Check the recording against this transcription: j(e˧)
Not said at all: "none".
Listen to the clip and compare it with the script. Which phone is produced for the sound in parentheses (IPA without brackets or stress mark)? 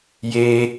eː˧